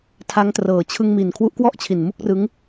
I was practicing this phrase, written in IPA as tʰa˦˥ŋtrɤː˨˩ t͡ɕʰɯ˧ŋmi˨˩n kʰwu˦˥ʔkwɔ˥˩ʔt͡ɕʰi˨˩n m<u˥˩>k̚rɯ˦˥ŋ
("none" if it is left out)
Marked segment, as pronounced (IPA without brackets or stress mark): u˥˩